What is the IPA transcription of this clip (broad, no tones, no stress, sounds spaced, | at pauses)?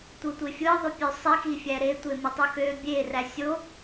tʷ ɯ tʷ e fʲ ɯ ðˤ y pʲ ø sˤ i x i fʲ æ ɾ e tʷ e m ɯ tˤ u x ø bʲ e r æ sʲ o